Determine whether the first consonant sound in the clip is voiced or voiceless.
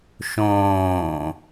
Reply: voiceless